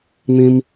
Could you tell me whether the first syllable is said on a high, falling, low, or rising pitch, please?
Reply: high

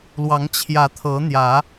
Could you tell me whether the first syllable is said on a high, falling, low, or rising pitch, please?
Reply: rising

